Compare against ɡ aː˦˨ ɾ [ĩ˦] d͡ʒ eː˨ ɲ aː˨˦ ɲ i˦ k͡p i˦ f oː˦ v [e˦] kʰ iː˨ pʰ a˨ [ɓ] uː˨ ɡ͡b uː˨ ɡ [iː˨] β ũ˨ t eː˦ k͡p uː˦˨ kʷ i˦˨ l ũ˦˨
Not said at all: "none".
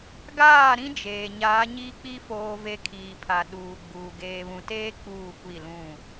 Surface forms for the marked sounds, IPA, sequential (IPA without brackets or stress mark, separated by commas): ĩ˦, e˦, ɗ, eː˨